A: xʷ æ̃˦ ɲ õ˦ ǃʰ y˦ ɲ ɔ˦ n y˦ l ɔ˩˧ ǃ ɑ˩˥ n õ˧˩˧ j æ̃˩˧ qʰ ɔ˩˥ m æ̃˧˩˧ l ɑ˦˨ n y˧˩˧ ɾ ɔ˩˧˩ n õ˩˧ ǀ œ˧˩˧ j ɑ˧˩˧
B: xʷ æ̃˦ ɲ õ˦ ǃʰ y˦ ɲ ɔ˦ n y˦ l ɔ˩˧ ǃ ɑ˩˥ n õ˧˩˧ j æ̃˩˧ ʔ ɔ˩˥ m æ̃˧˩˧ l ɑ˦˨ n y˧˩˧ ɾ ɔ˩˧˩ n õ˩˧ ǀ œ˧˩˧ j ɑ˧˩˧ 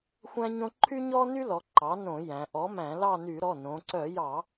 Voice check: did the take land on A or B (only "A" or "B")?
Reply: B